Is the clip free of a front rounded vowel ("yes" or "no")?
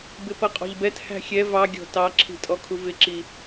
yes